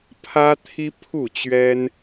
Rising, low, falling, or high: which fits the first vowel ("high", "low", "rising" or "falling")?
high